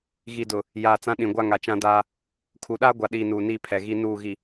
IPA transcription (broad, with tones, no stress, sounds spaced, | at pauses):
ɣ i˨ d ʊ˨ | j aː˨ t͡s ã˦ ɗ ĩ˨ ɡʷ a˦ ŋ a˨ t͡ʃ ã˦ d aː˦ | kʰ u˨ ɗ aː˦ ɡʷ a˨ ɗ iː˨ n uː˨ n iː˦ pʰ ɛ˨ ɣ i˦ n uː˦˨ ɣ i˨